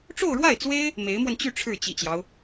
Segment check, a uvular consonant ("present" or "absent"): absent